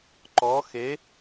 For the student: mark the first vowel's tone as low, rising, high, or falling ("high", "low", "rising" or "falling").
rising